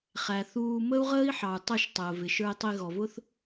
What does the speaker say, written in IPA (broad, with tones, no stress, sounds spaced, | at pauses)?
χ æ˨ θ uː˧ m ə˦ u̯ ʁ əː˦ i̯ ħ ɑ˨ u̯ tˤ ə˦˨ ʃ tˤ əː˨ v ɪ˨ ʃ ə˞˧ i̯ tˤ i˧ ɣ ɔ˨ v ʊ˦ θ